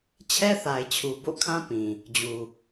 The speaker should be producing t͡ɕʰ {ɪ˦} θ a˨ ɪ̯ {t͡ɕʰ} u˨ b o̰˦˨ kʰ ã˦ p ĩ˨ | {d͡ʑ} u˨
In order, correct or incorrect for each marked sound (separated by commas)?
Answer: incorrect, correct, correct